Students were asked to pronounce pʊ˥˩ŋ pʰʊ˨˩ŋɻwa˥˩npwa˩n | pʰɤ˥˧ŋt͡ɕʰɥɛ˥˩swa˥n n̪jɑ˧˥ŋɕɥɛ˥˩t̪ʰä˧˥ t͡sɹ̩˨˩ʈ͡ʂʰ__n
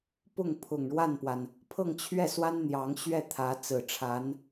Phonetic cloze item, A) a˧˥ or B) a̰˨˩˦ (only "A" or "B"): A